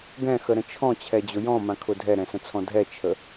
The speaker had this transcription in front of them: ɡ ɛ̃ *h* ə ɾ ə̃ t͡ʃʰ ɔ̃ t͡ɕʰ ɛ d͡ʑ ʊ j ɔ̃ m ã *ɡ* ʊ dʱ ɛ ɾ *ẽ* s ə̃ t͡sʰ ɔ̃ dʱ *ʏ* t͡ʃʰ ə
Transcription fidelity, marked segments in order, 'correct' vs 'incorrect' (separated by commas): incorrect, incorrect, incorrect, incorrect